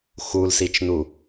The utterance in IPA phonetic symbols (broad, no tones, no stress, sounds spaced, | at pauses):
x u l s i t͡ʃ n u